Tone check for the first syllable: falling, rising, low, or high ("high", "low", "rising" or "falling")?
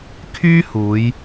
high